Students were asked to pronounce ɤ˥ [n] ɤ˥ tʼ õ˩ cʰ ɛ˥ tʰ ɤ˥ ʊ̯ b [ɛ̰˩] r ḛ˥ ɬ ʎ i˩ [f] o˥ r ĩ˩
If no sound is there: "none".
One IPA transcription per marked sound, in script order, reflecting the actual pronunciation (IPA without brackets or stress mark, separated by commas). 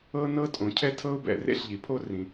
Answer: n, ɛ̰˩, pʰ